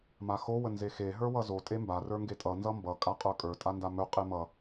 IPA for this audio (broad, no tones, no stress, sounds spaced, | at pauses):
m a x o w ə n z e x e ɦ ə˞ w ʌ z o tʼ e m b a r ə˞ ŋ ɡ e tʼ ʌ n z ʌ m b ʌ kʼ a qʼ ə˞ kʼ ə˞ tʼ a n d a m ɵ qʼ e m ʌ